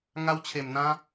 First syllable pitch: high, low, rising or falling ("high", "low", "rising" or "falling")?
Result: high